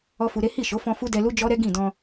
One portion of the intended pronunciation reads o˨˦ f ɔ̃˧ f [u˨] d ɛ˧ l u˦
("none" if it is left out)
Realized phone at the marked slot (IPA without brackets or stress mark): u˦